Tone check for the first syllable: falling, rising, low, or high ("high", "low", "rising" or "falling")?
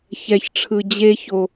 high